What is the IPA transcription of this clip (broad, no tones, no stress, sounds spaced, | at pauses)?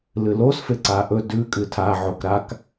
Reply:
l ɨ l o s f e ǀ a ʔ ɵ d ʉ kʼ ɨ tʰ a ʕ o k ɾ a k